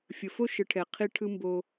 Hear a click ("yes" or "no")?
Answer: no